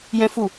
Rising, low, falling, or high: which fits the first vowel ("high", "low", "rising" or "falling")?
high